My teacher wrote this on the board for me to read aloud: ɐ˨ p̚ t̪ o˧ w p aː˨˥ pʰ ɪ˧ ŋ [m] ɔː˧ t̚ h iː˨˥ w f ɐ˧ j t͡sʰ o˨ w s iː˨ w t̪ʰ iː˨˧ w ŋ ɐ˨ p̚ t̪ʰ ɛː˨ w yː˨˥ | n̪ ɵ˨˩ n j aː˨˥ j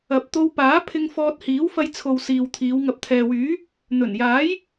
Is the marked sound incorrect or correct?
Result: incorrect